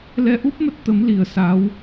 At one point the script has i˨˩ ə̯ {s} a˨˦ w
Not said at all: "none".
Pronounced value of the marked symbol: s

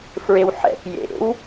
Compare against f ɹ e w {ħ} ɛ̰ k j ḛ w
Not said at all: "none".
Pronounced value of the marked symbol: ħ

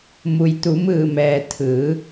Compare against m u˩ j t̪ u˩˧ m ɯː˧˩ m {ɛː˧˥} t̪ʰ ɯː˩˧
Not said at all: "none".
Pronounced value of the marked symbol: ɛː˩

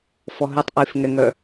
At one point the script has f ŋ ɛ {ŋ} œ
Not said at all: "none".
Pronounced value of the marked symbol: ŋ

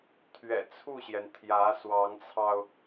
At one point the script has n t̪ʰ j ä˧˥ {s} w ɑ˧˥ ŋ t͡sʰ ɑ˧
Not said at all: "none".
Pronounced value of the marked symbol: s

